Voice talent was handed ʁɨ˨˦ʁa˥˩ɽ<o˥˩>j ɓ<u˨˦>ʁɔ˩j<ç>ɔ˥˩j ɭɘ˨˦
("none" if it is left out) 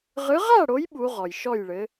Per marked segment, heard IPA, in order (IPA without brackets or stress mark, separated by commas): o˨˦, u˨˦, ʃ